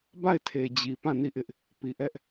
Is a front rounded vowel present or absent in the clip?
absent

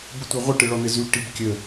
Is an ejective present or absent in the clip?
absent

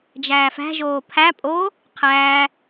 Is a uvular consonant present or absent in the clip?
present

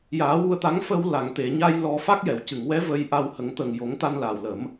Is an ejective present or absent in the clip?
absent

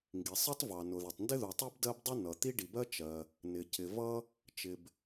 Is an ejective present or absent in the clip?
absent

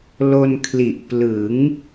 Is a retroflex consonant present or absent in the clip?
absent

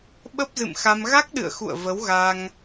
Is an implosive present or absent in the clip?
present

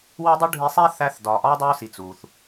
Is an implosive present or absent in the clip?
absent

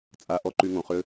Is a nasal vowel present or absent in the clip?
present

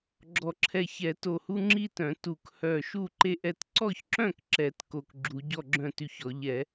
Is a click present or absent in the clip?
present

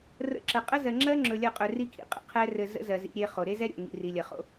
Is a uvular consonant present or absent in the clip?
present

